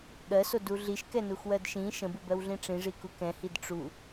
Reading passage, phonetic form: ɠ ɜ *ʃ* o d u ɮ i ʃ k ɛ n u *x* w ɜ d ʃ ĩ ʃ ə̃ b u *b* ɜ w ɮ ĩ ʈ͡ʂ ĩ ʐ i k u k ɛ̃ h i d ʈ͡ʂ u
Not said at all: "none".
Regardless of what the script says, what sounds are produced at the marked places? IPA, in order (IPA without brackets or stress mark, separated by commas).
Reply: s, x, b